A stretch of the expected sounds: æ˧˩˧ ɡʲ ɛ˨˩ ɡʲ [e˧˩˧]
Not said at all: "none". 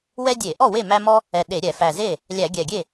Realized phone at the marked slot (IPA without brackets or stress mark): e˥˩